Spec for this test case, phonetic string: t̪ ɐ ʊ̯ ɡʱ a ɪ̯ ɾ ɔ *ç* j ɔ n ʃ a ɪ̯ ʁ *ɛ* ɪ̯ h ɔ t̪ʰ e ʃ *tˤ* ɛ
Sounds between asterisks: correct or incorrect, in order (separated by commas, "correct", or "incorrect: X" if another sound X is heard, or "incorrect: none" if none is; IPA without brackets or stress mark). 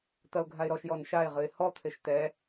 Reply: incorrect: ʃ, incorrect: ɨ, incorrect: t̪